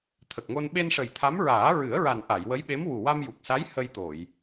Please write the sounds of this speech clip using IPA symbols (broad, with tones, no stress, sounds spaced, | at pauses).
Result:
t̪ʰ ə˨˩ k̚ ŋ o˧ n ɓ e˧ n ʂ ə˨˩ j t̪ʰ a˧˥ m ɹ aː˨˩˦ ɹ ɨ˨˩˦ ə̯ ɹ a˨˩ n ʔ a˨˩˨ j w ə˧˥ j ɓ e˧˥ m w u˨˩ w a˧ m j u˨˩ k̚ s a˧˥ j h ə˧ j t̪ o˨˩˨ j